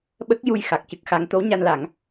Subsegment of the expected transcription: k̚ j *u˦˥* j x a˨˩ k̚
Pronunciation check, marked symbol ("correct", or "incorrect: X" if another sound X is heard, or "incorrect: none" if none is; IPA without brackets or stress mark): incorrect: u˧